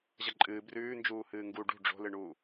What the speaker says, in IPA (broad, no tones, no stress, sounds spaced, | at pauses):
ʑ ɐ ǃʼ ɨː b r ʉː n d͡ʒ uː h ɨː ŋ ɡ u ɖ ṳ ɖ͡ʐ o̤ l ɨ ɳ uː